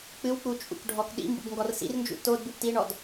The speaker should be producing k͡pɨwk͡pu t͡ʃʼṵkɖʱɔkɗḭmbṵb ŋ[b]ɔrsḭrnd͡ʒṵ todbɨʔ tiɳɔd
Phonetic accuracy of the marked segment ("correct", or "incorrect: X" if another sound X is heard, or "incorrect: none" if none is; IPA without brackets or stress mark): incorrect: ɡ